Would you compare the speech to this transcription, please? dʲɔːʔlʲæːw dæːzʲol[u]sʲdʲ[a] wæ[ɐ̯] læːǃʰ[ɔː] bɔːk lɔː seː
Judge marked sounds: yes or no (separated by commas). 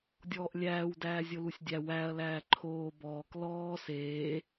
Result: yes, no, yes, no